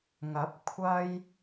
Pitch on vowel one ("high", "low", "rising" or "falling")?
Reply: rising